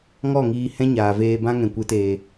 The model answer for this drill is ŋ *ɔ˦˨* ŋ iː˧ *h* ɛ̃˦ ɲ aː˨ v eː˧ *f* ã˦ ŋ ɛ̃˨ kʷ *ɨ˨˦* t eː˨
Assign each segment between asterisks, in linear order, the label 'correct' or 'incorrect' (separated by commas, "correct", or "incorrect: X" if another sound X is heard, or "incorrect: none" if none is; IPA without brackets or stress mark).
correct, correct, incorrect: b, correct